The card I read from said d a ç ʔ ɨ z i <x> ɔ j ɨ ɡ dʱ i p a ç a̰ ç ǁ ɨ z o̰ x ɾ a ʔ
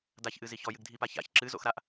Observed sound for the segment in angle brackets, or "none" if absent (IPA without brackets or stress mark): ç